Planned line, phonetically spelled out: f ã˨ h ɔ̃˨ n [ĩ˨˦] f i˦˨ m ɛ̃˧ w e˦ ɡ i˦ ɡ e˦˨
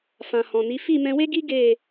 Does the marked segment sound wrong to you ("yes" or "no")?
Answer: yes